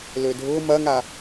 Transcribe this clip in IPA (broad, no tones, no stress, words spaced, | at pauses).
lødʱʊ mɐŋa